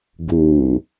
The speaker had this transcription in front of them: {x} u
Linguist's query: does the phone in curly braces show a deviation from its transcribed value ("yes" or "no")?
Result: yes